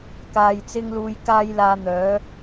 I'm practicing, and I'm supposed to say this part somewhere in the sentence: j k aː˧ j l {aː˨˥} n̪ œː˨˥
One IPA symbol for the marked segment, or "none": aː˨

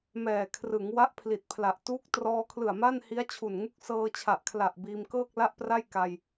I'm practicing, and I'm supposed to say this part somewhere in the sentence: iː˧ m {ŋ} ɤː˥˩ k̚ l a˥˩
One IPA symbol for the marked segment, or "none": k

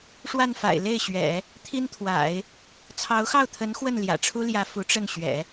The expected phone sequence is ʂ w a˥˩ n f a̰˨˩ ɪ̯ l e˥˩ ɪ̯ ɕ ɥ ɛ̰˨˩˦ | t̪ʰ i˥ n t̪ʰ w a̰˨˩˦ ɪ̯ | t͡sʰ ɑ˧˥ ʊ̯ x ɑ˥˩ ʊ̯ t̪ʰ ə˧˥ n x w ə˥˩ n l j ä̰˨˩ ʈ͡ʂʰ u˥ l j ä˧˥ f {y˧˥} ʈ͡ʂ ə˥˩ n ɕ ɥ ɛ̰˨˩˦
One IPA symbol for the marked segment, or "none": u˧˥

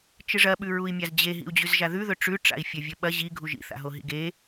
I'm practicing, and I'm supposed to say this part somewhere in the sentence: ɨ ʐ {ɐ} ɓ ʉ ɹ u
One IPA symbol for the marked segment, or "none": ɐ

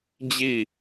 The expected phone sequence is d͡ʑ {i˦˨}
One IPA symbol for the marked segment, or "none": i˦˨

